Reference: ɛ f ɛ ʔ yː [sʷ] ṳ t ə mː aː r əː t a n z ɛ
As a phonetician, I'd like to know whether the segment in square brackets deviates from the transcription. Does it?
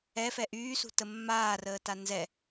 yes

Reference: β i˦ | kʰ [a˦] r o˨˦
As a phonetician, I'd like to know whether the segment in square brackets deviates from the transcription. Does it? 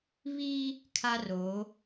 no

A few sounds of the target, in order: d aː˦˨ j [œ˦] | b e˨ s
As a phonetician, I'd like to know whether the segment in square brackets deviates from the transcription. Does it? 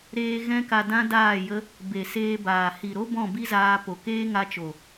yes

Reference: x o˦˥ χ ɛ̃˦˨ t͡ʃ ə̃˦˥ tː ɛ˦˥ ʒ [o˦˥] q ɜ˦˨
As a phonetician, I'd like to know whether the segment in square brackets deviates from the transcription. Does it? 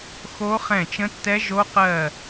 no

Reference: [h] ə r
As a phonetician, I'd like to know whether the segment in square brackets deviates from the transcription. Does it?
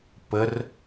yes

